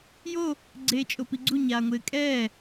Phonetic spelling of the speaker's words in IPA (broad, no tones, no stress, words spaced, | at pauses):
jo | ɡ͡ǀeːt͡ʃʼopiɡ͡ǀu ɲaːŋʷɪːkʼɛː